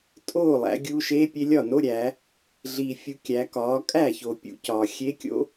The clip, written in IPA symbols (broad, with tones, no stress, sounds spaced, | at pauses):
tʼ oː˥˩ lˠ æ̰˩˧ ɡʲ uː˧ ʃ e˧˥ pʲ e˧ lʲ ɒ˥˩ n o˧˥˧ ɾʲ æː˩˧ | ɮ iː˩ fʲ u˩˧ kʲ æ˩˧ k ɒː˩˧ kʼ æː˥˩ ç o˩ pʲ ṵ˩˧ c ɒː˩ xʲ e˧˥ kʲ o̰˧˥